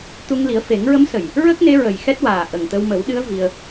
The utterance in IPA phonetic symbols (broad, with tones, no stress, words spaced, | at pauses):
t̪u˧ŋ li˨˩˦ə̯fe˨˩˦ŋɹə˧˥msə˨˩j | ɹə˦˥k̚ne˧˥ɹə˨˩j xɛ˦˥t̚waː˨˩ ʔə˨˩ŋt̪ə˧w mə˨˩˦wɗɨ˧˥ə̯ vi˧ə̯